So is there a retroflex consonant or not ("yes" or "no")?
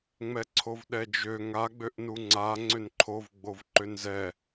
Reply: no